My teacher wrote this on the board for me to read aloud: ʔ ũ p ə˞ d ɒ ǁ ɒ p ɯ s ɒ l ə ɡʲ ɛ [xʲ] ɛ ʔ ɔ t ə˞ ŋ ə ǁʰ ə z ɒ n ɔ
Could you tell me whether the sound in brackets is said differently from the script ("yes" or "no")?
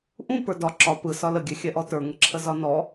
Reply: no